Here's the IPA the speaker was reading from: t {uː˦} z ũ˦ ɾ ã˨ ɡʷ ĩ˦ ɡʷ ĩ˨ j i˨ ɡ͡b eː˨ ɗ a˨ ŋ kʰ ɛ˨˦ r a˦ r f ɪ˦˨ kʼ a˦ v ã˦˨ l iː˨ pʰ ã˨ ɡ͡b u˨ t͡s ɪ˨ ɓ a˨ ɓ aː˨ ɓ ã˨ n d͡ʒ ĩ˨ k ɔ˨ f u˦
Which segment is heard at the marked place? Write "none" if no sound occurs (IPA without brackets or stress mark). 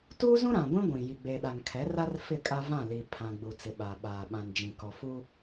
uː˦